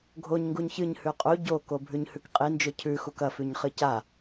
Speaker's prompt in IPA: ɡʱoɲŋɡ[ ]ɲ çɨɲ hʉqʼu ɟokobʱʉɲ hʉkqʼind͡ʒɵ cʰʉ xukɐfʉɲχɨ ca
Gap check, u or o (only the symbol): u